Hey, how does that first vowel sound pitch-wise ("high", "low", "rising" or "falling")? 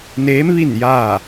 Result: rising